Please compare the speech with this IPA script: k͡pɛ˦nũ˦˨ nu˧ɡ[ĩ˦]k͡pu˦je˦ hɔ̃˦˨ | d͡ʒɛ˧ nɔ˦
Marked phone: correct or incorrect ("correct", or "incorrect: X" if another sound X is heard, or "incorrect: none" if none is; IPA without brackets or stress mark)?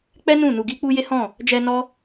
incorrect: i˦